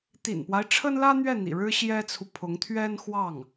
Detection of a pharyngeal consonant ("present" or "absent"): absent